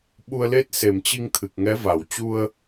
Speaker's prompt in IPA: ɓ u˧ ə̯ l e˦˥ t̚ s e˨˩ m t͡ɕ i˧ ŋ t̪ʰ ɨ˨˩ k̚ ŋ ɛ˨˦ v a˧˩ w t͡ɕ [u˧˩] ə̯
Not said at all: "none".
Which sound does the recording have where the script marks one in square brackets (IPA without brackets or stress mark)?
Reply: u˧